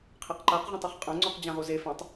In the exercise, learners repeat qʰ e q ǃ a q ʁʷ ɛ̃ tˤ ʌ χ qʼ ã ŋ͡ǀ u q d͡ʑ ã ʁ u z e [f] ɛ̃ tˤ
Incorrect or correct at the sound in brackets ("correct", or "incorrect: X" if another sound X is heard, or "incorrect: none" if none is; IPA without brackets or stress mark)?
correct